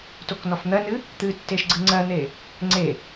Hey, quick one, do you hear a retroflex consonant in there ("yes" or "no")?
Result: no